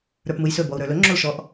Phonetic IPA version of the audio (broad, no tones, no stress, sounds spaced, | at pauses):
ɾ ə˞ p m ɯ j s ɵ b ɔ u̯ ɾ ə˞ l ɵ ŋ͡ǁ o l ʃ ɔ ʔ